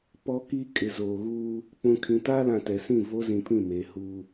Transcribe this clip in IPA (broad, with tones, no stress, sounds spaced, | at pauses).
p ɔ˦ k iː˦ kʼ ɪ˨ z oː˨ ɣ uː˦ | k͡p ũ˨ kʰ ĩ˨ t aː˦ l ã˨ t ɛ˨ s ĩ˦˨ v o˦ z ĩ˨ pʰ ĩ˦˨ m eː˨ h uː˦